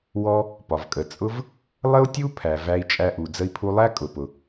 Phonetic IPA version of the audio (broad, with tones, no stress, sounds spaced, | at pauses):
w ɔ˥ | p ɒ˩ v kʼ ə˩ t͡sʼ ʊ˥ v | lˠ ə˥ u̯ tʲ u˥ pʰ æ˩ v æ˧ i̯ t͡ʃʼ æ˧ ʔ u˩ d͡z ə˧ i̯ pʰ u˧ lˠ æ˥ kʼ ʊ˩ p ʊ˩